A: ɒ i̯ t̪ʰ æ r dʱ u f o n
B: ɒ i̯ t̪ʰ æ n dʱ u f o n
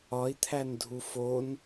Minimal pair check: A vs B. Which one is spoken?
B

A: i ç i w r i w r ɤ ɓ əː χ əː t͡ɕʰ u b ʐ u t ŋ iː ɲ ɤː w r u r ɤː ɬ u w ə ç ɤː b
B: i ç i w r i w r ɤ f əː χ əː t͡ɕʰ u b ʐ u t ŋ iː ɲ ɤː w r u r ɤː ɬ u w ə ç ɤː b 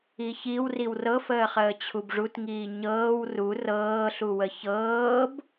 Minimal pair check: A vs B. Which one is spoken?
B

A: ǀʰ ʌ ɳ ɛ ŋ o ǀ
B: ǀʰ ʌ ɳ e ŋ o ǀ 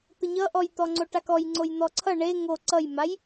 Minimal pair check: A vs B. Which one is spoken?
B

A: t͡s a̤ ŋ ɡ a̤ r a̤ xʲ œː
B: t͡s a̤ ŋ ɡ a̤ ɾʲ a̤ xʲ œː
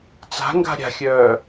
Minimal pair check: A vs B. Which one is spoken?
B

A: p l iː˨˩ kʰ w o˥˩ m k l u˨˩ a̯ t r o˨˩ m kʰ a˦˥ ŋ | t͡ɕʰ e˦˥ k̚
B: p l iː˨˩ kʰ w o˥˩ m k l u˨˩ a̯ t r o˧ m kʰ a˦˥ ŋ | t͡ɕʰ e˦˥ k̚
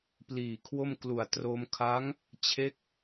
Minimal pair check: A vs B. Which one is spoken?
B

